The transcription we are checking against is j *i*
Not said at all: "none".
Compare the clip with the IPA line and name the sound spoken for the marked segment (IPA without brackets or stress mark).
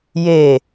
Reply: e